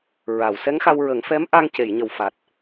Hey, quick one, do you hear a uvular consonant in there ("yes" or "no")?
no